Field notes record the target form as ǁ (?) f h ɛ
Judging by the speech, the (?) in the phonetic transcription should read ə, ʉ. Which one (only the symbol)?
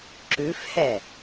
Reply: ʉ